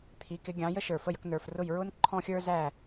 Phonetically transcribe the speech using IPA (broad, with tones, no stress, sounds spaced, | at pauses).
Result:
t̪ʰ i˩˥ k ɪ˩˥ ɡʲ ɑ̃˩˥ j ə˥ ʃ ə˞˩ f ə˥˩ j ə˧ k n ə˞˩ f r ʊ˥˩ j ɹ ʊ˥ n ǃʰ ɔ̃˥ xʲ ə˞˥ z æ˥˩